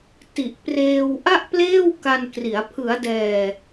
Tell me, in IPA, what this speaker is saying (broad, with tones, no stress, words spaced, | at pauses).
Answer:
ti˨˩ʔpreː˧w ʔa˥˩ʔpleː˥˩w ka˧nkri˩˦a̯ pʰɯ˩˦a̯dɛː˨˩